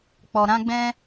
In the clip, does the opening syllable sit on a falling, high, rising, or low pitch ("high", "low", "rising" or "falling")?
low